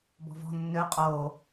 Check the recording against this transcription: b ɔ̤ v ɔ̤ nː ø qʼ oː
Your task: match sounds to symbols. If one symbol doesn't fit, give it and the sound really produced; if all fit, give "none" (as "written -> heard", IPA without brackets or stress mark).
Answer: none